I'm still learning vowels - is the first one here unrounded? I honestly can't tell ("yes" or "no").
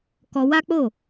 no